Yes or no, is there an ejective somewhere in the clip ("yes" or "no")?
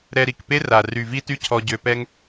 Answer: no